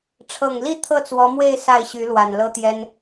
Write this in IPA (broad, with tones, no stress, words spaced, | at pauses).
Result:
ʈ͡ʂʰɤ˨˩ŋli˥˧ t̪ʰɤ˥˩t͡swɔ˧˥mwe˥˧ɪ̯ sa˥˩ɪ̯ɕy˧˥ lwa˨˩nlɤ˥t̪jɛ˥n